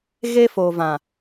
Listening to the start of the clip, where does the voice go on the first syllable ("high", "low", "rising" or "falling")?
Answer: high